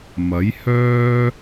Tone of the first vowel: rising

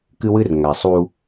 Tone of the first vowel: high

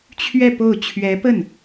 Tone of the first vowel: falling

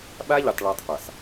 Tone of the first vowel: high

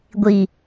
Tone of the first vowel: low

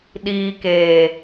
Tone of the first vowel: low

